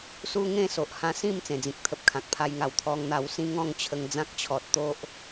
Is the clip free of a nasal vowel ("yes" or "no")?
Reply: no